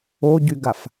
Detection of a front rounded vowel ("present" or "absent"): present